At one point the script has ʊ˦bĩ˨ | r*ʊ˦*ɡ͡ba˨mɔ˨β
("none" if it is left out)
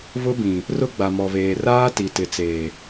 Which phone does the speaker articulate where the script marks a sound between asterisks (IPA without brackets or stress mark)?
ʊ˦